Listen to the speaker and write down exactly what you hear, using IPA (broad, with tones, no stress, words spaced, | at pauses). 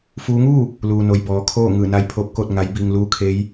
fuː˧˥ ŋuː˥˨ | luː˩no˩j bɔː˩kʰoː˥˨ ŋɯː˧˩na˧˥jpʰoː˧˥p̚koː˥˨t̚ ŋa˧˥jbiː˧ŋ luː˧˥kʰeː˧˥j